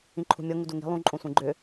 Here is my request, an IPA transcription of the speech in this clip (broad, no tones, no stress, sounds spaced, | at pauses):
ĩ ǃʰ ṳ mʲ ɤ ŋ u d u ŋ i̤ lˠ ũ ǃʼ õ sʷ ĩ ɡ͡ǃ ʏ